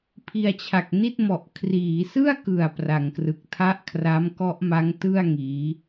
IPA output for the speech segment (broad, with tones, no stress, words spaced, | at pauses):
pʰi˧a̯t͡ɕʰa˨˩k̚ni˥˩t̚mɔ˨˩ʔ kʰriː˩˦sɯ˥˩a̯kɯ˨˩a̯ pra˩˦ŋkrɯ˨˩k̚ tʰa˦˥ʔkʰra˦˥mkɔ˦˥ʔma˦˥ŋ tɯ˥˩a̯ ŋiː˦˥